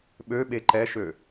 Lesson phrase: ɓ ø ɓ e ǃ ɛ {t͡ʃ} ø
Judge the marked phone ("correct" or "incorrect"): incorrect